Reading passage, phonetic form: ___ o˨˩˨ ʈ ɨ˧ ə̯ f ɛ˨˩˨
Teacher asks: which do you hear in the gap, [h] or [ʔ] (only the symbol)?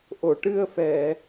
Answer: ʔ